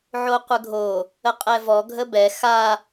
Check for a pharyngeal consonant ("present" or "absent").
present